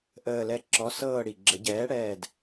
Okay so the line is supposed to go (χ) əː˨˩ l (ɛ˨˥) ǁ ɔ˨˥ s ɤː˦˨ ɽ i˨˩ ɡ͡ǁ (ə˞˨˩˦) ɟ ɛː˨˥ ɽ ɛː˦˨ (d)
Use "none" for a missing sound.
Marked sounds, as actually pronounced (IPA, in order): ʔ, ɛ˨˥, ə˨˩˦, d

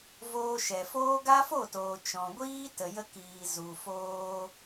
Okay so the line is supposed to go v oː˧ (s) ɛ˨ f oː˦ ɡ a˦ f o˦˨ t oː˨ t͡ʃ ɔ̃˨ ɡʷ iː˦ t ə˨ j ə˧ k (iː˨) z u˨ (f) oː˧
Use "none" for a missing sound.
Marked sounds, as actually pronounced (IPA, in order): ʃ, iː˨, f

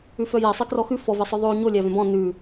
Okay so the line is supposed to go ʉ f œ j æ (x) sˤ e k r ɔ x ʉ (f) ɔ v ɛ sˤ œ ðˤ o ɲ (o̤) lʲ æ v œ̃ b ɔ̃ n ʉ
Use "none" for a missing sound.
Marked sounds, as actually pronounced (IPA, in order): none, f, o

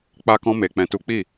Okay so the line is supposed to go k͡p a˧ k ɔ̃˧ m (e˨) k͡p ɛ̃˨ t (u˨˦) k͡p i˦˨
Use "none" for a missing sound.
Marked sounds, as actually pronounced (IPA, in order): e˨, u˨˦

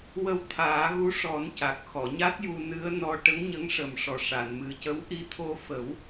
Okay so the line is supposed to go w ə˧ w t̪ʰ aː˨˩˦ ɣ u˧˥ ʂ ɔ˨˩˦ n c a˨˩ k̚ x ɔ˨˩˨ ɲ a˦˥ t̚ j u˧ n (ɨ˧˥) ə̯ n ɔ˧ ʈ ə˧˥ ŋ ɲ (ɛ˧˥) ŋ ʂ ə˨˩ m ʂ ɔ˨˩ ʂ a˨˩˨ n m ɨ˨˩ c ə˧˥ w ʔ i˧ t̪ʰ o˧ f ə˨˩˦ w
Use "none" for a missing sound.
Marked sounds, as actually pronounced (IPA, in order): ɨ˧˥, ə˧˥

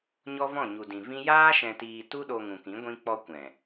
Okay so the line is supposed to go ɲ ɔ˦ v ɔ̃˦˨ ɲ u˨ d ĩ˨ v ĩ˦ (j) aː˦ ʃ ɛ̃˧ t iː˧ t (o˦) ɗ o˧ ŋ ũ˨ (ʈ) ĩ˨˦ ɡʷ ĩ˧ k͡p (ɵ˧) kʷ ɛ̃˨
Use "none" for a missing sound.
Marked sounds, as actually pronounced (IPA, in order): j, u˦, k, ɔ˧

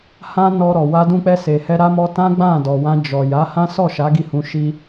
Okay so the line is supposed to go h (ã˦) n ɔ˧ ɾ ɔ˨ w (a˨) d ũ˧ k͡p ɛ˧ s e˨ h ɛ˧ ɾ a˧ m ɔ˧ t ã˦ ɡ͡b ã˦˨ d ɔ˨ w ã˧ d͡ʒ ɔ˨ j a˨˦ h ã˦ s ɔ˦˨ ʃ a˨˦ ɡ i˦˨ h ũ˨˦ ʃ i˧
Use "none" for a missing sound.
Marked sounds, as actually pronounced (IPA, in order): ã˦, a˧

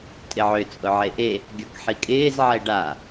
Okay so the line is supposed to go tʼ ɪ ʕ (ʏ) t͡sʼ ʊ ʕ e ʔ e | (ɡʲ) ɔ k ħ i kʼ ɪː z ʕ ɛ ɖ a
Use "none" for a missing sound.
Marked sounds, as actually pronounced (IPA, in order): ʏ, ɡʲ

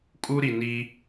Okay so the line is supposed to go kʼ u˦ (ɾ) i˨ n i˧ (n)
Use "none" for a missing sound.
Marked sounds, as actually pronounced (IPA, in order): ɾ, none

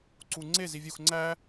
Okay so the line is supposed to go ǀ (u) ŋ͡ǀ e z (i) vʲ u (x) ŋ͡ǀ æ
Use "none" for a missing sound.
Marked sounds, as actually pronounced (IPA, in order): u, i, x

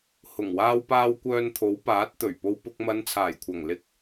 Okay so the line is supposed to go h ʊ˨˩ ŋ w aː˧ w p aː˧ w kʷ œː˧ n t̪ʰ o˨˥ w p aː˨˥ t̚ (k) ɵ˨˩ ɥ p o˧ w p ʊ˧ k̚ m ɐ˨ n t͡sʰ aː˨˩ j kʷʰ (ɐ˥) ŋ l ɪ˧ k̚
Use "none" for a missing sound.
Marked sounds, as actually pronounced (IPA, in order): t̪, ɐ˨˩

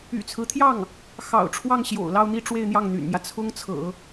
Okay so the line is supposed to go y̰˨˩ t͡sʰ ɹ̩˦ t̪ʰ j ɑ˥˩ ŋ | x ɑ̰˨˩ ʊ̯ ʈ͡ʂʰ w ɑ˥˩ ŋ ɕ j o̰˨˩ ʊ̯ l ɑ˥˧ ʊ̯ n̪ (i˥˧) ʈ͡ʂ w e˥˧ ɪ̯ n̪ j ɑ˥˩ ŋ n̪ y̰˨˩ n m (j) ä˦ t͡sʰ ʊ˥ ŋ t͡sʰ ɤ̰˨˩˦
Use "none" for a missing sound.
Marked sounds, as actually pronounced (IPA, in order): i˥˧, j

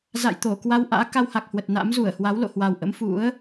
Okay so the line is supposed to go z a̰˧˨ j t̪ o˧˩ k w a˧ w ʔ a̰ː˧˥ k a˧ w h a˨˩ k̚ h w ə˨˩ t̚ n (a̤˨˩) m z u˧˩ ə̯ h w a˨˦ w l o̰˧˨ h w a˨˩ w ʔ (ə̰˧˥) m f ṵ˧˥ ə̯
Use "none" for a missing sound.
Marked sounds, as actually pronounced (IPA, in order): a̰˧˥, ə̰˧˥

